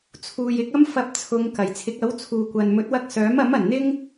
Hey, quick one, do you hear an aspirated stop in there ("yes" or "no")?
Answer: yes